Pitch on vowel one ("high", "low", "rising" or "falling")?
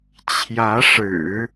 rising